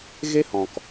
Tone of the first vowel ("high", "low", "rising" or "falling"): high